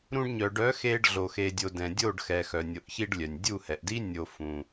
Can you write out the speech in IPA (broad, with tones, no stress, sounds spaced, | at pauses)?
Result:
ɾ ũ˧ ɖ ɲ œ˨ ɖ œ˨˦ x e˧ ɖ ɮ o˧ x e˧ dʲ o˧ d ɛ̃˨ dʲ o˦˨ ɖ x ɛ˨ x œ˨ nʲ o˨ ʔ ç i˧ ɖ lʲ œ˨ nʲ dʲ u˦˨ h ɛ˨ ʔ d i˦ nʲ o˧ f ũ˧